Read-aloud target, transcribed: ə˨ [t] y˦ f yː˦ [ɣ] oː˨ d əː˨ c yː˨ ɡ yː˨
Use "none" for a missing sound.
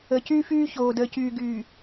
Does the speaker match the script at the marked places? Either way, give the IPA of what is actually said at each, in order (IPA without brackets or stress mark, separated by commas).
c, ç